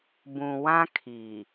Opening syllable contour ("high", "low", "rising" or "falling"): low